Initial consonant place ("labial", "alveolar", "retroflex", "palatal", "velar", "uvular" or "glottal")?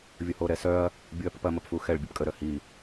labial